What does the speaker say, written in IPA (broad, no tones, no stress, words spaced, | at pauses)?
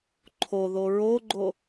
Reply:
ǃʰoðo ɹoɡ͡ǃo